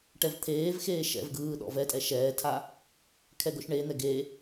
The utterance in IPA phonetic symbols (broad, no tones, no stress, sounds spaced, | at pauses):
ʈ ɛ v t̪ʰ eː v x eː ʃ ɛ̰ v ɡ ɯː ɗ ɔ̰ v ɛ tʼ ɛ ʃ ɛː tʰ a | kʰ ɛ ɡ o ʃ ɳ e n̪ ɛ ɡ e